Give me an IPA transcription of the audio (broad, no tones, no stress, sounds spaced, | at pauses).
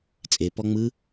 t͡sʼ e p ɔ ŋ͡m ɯ